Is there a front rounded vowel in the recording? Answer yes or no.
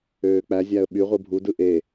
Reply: yes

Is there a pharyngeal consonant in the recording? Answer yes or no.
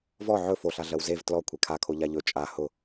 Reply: yes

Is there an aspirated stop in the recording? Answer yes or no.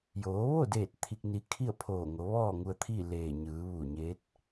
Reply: yes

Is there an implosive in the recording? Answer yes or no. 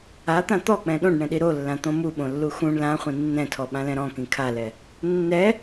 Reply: yes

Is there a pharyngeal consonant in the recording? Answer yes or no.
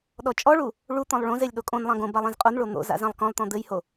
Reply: no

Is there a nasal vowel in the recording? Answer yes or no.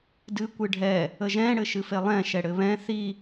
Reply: yes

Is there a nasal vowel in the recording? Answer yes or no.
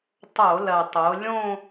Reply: yes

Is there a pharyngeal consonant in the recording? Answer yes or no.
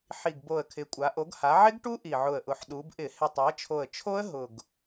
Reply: yes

